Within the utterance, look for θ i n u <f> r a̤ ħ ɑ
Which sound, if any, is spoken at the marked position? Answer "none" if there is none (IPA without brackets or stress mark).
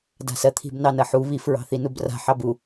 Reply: b